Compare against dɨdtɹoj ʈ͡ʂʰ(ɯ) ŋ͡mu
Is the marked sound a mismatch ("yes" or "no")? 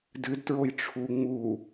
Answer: yes